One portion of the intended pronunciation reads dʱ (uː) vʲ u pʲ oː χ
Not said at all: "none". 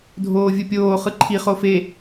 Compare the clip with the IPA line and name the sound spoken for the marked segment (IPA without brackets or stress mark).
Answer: oː